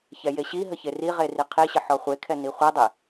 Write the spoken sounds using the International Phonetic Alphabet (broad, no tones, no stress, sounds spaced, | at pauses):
ç ɛ j e ɕ i ɦ ə ç e r i ʁ e r i qʰ i ɕ ə ħ ɔ χʷ e kʰ ɛ n i χʷ ɛ dˤ e